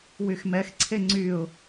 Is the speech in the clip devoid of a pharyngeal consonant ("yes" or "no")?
yes